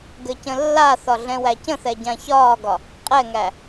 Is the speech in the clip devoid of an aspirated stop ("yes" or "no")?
yes